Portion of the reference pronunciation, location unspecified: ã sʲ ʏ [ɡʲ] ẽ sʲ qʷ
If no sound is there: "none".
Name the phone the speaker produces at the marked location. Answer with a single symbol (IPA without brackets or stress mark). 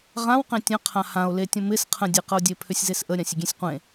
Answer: ɡʲ